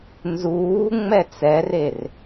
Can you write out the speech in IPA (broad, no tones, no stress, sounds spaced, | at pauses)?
n z uː ŋ͡m ɛ t͡s ɛ r e r